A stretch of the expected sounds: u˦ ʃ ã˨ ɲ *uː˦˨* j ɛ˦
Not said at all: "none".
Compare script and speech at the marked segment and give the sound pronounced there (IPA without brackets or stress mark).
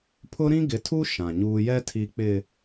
uː˦